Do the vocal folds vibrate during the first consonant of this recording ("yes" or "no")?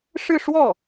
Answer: no